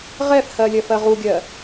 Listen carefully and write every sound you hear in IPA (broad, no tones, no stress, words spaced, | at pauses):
ʁɛfhɜ lʲɜfɜʁuɡʲɜ